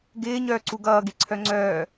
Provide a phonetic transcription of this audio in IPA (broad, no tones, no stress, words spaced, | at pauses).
ɡɪːɲœːǀu ɡʌːɡeǀʰœ ŋ͡ǀœː